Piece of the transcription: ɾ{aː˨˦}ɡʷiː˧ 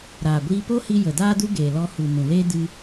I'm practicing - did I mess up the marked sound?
yes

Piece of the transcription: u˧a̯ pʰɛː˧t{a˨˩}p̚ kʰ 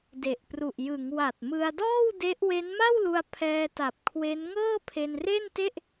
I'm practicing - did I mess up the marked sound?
no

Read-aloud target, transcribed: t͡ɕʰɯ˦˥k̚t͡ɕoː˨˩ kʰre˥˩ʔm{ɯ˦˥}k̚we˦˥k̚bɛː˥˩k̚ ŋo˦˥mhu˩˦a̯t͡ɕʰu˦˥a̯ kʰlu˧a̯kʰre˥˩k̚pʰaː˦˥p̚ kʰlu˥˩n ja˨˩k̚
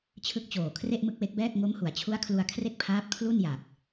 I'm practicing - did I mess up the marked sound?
no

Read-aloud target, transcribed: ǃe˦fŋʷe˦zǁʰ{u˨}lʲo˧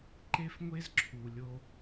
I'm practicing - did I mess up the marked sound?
no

